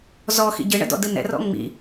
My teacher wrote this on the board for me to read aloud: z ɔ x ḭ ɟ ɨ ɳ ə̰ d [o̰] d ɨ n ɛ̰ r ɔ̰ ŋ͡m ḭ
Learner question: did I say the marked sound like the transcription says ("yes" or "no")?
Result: no